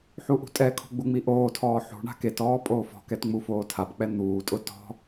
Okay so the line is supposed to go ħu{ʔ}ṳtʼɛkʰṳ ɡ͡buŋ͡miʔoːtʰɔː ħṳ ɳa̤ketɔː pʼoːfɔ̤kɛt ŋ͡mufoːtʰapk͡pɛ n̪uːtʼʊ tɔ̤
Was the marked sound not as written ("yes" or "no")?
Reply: no